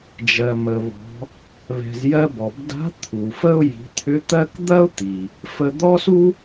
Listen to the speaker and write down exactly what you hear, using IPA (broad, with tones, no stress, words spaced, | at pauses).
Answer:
d͡ʒɜ˩mə˩βɔ̤˩˧ | βɛ̤˩z jɜ˧bɔ˩bda̤˧˥ t̪ʰu˩ fə˥ʊ̯ ji̤˩˧t̪ʰʏ˧˥t̪ɜ˥k d̪ɐ˥ʊ̯t̪i˩ | fə˧d̪ɔ˥su˥